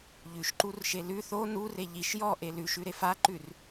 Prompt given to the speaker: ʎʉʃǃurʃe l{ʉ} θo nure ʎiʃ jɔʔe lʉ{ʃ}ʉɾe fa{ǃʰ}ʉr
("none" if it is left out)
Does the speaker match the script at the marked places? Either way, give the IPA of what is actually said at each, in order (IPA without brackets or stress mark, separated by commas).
ʉ, ʃ, ǃ